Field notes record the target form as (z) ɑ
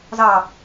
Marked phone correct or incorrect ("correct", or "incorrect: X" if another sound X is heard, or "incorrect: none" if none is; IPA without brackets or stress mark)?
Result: correct